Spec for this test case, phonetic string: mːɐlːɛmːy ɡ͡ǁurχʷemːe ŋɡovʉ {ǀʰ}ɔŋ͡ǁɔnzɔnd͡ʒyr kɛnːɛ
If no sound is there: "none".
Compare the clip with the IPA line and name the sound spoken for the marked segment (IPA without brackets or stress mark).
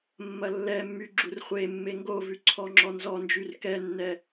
ǀʰ